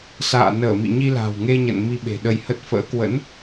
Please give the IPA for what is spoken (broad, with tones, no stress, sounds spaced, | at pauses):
s a̰ː˧˨ n əː˧˩ m ḭ˧˨ ɲ i˧ l a̤˨˩ w ŋ e˧ ɲ ə̰˧˨ n m i˧ ɓ e̤˨˩ ɗ ə˧ j h ə˦˥ t̚ f ə̰ː˧˥ k w ə̰˧˥ n